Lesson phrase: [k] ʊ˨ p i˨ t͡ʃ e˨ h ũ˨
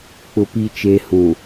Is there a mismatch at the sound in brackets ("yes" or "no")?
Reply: yes